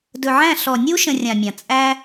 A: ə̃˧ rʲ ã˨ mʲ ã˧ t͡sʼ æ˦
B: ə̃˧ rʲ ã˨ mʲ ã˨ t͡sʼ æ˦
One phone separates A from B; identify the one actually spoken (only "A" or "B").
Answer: B